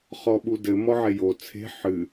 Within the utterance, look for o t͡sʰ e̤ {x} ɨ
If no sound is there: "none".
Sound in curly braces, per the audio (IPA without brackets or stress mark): ħ